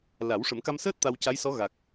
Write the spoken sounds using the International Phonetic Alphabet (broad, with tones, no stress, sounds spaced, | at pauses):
l a˨˩˦ w ʂ ə˨˩˦ m k a˧ m s əː˦˥ t̚ t̪ a˧ w c a˧˥ j s ɔ˧˥ ɣ a˨˩ k̚